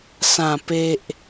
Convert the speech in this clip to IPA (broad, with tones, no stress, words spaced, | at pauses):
sã˨˩pe˨ʔ